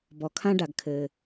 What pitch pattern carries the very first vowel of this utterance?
low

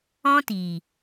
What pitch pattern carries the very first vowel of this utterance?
high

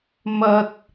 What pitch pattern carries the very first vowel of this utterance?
high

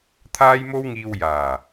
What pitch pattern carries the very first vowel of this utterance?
high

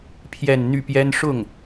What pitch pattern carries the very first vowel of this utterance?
falling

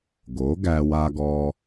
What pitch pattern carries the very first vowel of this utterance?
rising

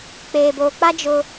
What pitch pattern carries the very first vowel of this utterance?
low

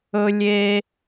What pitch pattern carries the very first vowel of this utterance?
high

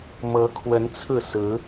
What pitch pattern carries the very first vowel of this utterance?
rising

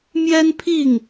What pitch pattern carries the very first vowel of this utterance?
high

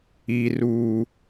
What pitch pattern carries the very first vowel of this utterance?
high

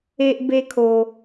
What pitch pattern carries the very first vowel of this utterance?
high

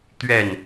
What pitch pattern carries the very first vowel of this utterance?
falling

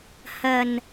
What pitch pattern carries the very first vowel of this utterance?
low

